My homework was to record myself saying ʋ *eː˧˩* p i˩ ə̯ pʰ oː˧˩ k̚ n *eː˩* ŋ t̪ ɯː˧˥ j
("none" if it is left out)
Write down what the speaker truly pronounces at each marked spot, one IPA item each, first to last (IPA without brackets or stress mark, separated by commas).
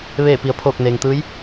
eː˧˩, eː˩